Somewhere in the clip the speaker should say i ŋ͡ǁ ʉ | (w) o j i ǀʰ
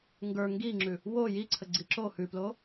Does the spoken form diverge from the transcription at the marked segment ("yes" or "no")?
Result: no